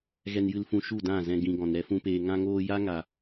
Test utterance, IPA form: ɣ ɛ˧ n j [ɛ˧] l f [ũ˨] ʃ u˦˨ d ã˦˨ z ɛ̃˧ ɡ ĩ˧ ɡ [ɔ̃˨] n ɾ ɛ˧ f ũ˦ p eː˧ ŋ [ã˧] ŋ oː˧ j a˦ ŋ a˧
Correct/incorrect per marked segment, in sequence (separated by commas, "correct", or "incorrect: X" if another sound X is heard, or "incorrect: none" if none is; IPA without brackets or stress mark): incorrect: ɨ˧, incorrect: ũ˧, correct, correct